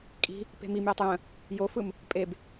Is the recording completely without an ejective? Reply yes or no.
no